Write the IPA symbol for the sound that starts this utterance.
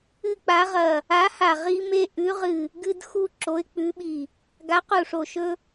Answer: ɨ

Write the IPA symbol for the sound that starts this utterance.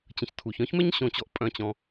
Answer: t͡ɕ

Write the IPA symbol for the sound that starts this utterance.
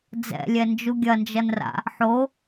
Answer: d͡z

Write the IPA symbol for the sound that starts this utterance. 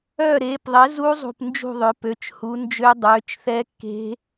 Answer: œː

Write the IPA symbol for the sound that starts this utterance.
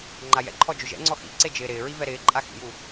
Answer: ŋ͡ǃ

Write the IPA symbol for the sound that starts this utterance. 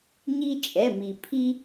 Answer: ɲ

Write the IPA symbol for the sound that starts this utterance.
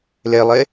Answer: l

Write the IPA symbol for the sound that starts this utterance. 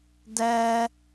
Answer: d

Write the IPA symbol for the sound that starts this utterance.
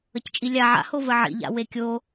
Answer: ə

